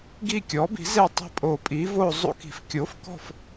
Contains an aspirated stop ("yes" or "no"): no